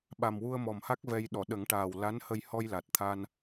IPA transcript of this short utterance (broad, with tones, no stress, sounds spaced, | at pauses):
ɓ a˨˩ m w u˧ ə̯ m ɔ˨˩ m h a˦˥ k̚ v ɛ˧ j ɗ ɔ˨˩˨ ɗ ə˨˩˦ ŋ ʈ aː˨˩ w l a˧˥ n h ə˧ j h ɔ˧ j l a˨˩ t̚ t̪ʰ a˧ n